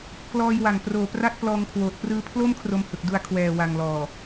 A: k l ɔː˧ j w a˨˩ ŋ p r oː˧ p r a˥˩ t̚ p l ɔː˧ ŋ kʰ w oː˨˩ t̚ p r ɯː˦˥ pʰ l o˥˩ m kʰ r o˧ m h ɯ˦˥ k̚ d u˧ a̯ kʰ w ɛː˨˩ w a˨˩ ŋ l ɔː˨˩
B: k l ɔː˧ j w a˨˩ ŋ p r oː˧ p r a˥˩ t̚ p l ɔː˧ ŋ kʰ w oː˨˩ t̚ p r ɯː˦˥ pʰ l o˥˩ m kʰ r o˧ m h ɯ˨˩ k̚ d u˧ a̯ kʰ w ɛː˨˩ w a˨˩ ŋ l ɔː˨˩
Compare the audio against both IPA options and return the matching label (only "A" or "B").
B